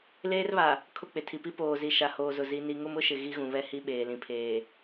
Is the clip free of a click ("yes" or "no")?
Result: yes